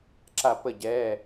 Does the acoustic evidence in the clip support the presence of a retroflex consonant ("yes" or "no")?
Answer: no